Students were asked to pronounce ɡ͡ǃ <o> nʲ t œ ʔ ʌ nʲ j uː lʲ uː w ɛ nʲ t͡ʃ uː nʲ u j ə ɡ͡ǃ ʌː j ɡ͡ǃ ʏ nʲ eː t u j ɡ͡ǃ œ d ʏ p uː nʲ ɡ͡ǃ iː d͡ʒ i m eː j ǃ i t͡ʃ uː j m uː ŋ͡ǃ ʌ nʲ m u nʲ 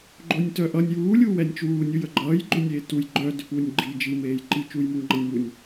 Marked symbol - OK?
yes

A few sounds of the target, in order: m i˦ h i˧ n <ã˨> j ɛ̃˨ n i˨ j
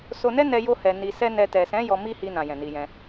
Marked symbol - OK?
yes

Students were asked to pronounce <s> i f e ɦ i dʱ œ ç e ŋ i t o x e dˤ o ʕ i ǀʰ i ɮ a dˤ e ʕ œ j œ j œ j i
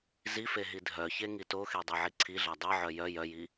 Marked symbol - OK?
no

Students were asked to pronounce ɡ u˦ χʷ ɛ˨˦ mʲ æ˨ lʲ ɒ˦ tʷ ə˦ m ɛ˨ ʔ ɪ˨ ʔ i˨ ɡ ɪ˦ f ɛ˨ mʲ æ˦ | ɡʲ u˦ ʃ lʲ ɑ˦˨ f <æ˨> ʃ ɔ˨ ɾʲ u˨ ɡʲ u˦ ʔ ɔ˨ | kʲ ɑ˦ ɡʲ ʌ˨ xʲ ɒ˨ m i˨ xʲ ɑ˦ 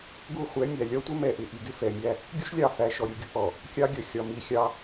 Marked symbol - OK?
yes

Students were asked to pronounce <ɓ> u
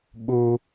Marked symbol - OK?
yes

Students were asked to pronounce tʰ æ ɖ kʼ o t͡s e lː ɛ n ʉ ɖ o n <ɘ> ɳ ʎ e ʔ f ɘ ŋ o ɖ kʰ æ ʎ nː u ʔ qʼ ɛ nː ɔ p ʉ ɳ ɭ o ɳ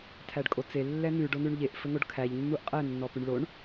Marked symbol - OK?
no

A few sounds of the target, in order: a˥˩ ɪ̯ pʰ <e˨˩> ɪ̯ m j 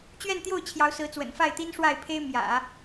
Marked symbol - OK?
no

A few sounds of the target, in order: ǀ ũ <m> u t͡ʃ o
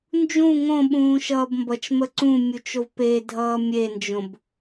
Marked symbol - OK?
no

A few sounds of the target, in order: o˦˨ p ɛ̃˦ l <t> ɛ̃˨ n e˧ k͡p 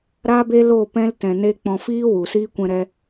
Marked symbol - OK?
yes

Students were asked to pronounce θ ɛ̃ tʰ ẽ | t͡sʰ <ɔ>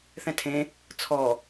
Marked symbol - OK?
yes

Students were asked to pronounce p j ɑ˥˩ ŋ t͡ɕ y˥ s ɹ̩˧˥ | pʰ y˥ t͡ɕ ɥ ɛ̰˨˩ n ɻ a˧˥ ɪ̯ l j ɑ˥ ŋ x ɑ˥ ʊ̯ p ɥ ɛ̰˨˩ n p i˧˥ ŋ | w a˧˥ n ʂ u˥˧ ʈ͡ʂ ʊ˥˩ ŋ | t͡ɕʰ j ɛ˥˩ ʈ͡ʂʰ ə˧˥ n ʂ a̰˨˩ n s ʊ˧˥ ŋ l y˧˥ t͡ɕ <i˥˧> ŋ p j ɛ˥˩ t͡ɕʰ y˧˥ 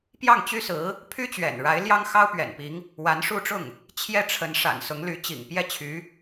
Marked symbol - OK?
no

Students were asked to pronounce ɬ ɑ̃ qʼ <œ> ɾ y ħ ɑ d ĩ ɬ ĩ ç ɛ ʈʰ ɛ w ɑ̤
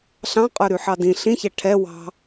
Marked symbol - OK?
yes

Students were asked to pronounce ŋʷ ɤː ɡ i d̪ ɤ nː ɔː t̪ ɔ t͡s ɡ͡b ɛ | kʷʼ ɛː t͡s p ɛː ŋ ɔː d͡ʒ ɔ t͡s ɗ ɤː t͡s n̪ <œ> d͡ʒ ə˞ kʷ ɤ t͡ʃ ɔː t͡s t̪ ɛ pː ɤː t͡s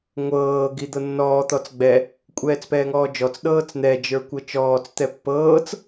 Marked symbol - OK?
no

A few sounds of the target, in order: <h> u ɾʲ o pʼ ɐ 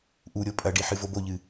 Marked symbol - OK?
no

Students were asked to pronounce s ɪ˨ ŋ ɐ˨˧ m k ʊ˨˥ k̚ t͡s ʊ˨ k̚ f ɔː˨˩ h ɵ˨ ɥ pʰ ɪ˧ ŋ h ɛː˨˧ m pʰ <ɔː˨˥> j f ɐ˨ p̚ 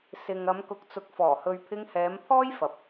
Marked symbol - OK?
no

